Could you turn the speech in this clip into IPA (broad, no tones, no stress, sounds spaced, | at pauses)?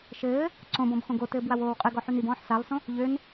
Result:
ʃ ɘː | ǀ õ b ɔ̃ b x õ ɡ o t ɘː b w a w oː w qʼ ɘ ɡ ɔ ħ y n i b ɔ̃ː ħ s a lˠ s õ | ʎ ø n